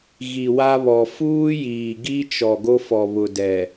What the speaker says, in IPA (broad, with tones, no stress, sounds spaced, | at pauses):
ɣ i˨ w a˦ β ɔ˨ f uː˦ j iː˨ ɡ i˦ t͡ʃ ɔ˨ ɡ o˦ f ɔ˨ β ʊ˨ d ɛ˨